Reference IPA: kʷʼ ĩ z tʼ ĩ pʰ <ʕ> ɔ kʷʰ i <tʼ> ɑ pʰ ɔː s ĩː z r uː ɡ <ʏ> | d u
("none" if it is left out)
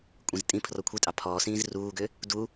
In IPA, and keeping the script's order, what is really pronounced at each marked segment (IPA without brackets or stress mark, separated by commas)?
r, tʼ, ʏ